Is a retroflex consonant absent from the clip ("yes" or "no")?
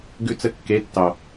yes